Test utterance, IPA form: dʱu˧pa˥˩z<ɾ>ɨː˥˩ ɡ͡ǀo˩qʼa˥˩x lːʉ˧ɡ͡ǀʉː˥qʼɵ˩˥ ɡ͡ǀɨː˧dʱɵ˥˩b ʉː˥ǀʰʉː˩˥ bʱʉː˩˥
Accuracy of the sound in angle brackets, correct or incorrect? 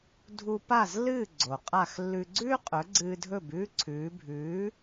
incorrect